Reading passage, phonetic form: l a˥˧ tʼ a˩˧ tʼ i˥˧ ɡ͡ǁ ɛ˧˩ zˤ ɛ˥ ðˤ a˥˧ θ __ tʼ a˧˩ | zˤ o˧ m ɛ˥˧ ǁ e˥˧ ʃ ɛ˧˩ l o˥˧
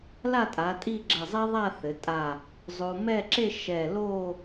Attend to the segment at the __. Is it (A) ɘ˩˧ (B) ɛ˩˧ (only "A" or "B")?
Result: A